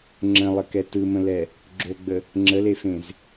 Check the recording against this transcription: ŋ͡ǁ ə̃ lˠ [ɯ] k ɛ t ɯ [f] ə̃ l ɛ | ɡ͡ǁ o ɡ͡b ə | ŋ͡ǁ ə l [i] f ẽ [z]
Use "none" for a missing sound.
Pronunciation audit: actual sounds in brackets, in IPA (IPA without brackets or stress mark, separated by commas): ə, m, e, z